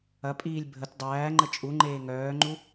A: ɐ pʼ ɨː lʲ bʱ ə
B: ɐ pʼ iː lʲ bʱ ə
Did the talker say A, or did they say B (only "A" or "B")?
B